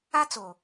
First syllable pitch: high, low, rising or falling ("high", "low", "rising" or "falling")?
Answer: high